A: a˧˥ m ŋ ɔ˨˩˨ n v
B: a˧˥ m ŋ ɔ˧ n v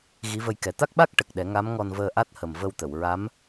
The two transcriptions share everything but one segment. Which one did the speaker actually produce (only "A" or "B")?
B